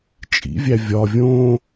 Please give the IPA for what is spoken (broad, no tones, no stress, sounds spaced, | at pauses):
t͡ʃʼ ḭ vʲ æ vʲ ɒ vʲ õ